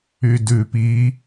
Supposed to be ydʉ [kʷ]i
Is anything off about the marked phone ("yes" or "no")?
yes